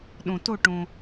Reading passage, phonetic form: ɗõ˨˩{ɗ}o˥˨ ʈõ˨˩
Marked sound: incorrect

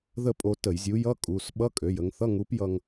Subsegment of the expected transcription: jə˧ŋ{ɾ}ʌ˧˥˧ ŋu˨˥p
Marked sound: incorrect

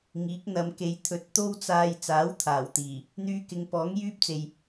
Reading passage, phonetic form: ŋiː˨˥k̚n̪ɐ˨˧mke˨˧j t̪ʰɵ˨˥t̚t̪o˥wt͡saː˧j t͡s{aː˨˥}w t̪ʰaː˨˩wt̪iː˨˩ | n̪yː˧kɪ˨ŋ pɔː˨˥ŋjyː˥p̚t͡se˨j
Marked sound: correct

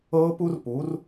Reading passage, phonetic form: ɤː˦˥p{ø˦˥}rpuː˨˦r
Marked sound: incorrect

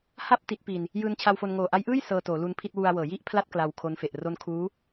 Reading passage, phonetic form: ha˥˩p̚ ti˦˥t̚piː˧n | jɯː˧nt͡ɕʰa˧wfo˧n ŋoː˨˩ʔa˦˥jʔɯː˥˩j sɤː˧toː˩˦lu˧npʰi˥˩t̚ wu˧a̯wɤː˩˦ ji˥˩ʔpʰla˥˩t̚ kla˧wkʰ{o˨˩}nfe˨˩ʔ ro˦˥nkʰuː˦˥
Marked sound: incorrect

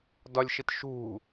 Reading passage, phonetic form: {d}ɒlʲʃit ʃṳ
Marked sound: correct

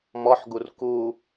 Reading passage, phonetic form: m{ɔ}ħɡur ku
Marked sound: correct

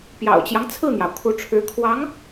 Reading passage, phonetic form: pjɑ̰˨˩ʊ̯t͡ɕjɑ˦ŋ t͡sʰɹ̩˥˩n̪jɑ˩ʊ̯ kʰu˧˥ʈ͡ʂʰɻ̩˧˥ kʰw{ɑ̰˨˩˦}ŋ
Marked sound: incorrect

